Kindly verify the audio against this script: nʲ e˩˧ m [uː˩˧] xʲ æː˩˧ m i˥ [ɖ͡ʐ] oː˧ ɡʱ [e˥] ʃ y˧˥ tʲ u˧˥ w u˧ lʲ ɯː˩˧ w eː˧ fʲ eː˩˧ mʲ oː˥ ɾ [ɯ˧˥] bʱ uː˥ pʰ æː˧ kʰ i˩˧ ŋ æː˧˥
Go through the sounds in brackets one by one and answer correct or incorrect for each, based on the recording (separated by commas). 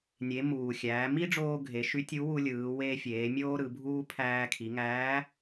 incorrect, correct, incorrect, incorrect